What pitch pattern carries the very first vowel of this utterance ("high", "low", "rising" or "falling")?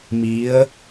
rising